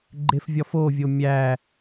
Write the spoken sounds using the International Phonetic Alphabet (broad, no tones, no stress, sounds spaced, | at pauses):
ɡ͡ǃ e f vʲ ɒ f o vʲ o mʲ æ